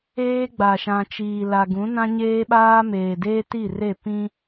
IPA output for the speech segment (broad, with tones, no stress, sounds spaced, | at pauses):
eː˦ ɡ͡b a˨ ʃ ã˨ t͡ʃ iː˨ l a˨ ɡ ũ˨˦ n ã˦ ɲ eː˦ ɓ aː˦ m eː˨ d eː˦ t i˦˨ r e˦˨ p ĩ˦